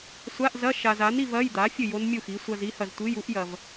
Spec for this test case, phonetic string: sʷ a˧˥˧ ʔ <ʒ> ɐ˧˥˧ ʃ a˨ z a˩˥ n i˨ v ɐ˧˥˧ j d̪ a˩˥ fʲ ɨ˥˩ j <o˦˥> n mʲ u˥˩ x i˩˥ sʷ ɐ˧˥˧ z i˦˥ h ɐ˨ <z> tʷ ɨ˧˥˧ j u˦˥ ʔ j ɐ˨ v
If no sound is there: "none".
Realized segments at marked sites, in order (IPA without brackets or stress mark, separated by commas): z, o˦˥, z